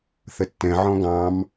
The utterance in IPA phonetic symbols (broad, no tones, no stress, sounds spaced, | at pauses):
θ ə tː ɛ̃ ʕ ɔ̃ ɡ ɑ̃ m